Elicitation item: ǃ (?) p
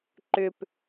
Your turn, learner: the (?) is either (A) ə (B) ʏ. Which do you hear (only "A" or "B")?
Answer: B